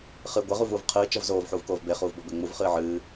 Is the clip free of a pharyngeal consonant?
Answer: no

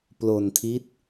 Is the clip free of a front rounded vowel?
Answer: yes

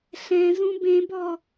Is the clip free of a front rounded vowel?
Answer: yes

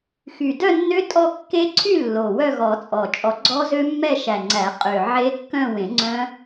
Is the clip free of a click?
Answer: no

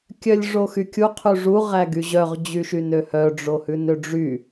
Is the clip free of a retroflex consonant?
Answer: no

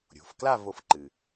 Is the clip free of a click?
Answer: no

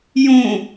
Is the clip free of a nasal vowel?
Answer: no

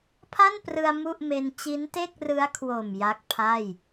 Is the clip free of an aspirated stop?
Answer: no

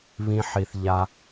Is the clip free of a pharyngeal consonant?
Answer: no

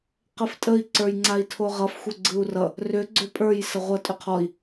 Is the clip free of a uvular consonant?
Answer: no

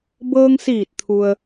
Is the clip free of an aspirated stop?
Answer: no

